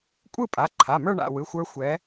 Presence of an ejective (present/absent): present